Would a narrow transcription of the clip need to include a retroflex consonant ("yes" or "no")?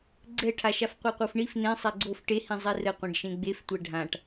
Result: yes